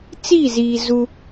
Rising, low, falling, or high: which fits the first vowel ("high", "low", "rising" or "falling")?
falling